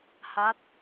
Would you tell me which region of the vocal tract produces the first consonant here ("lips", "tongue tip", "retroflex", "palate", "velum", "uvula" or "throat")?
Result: throat